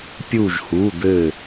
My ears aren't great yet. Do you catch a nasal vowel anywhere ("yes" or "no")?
no